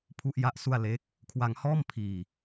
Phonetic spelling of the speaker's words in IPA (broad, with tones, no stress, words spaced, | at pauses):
pʰu˥˩ʔja˥˩ʔsu˥˩a̯ le˦˥k̚ | kʰwa˧ŋhɔː˥˩m pʰiː˧